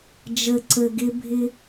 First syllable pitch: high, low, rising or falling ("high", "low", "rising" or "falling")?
low